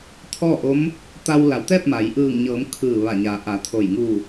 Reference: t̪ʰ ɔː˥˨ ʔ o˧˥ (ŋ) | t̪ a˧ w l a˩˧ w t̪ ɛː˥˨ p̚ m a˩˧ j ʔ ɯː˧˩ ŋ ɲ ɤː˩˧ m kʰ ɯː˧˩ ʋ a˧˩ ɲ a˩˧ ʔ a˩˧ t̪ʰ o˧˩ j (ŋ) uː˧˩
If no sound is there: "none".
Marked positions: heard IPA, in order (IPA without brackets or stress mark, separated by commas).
m, ŋ